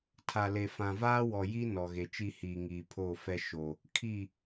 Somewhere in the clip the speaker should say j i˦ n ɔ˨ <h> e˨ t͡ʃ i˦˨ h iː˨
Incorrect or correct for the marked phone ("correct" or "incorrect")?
incorrect